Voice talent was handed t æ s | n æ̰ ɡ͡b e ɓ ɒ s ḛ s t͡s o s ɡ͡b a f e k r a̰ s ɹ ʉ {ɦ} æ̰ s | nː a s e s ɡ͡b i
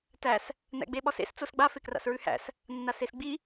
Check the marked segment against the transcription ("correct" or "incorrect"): incorrect